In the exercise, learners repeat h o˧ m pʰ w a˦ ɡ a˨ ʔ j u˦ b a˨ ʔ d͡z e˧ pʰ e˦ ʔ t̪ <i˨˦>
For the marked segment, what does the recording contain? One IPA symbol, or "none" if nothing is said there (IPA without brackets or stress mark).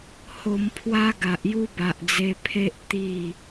i˥˧